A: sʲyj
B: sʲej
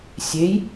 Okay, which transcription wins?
B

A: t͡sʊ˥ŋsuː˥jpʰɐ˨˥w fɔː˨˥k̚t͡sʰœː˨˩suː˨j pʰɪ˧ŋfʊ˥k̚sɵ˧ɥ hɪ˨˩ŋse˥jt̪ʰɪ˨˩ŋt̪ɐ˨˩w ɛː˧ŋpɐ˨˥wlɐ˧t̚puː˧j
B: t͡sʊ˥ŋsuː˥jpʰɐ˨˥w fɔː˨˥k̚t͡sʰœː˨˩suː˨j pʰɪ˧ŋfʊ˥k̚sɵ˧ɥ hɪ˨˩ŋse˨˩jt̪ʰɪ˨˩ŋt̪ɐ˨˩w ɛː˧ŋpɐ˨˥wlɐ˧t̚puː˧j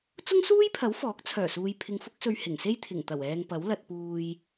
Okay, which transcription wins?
A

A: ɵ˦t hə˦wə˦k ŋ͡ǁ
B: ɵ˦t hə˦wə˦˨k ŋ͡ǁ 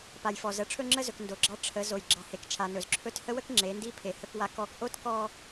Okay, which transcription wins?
A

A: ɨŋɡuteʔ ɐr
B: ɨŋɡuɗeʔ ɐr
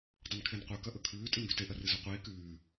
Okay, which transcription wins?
A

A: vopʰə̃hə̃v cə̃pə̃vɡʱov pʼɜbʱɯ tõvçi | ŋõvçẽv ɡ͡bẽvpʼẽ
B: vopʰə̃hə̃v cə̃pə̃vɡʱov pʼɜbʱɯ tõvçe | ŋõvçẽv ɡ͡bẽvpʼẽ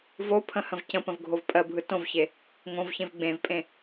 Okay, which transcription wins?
B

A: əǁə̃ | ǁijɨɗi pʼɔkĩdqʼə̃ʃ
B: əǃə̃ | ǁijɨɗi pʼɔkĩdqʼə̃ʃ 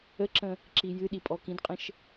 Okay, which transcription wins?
A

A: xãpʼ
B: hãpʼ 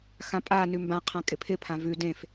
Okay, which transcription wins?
A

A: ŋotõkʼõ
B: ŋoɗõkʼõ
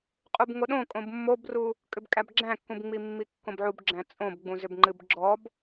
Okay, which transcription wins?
B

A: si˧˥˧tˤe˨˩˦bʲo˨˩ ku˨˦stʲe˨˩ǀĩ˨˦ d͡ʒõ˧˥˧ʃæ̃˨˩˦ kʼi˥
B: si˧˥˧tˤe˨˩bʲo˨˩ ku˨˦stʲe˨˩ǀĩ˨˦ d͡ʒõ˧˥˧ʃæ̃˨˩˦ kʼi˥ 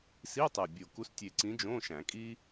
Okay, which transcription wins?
B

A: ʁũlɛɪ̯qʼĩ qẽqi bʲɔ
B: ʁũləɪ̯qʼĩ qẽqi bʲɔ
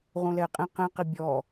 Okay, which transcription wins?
A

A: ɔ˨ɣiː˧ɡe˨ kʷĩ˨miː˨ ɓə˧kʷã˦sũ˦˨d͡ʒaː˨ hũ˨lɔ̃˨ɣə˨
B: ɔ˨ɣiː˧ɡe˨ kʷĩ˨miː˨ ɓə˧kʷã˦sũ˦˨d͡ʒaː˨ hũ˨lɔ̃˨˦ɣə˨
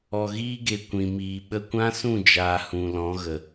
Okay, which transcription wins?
B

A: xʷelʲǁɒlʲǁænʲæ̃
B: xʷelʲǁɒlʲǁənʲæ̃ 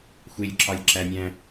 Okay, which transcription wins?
A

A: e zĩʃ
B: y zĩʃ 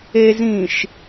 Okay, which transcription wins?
A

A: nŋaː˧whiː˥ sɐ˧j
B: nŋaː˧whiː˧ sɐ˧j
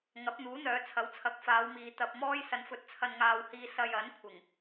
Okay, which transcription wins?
B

